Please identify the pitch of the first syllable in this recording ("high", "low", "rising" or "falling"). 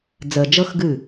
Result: low